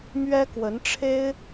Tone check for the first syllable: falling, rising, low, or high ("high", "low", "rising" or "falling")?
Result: high